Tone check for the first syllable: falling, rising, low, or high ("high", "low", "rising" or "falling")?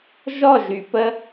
falling